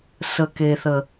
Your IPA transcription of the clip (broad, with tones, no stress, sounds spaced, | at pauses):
s ə˨ k e˨ θ ə˨